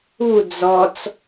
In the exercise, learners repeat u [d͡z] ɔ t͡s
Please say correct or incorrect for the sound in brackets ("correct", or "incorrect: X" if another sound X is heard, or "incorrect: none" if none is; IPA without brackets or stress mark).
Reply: correct